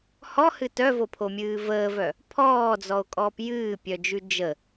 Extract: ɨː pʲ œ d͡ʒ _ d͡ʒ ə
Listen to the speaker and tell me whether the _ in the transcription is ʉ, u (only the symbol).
ʉ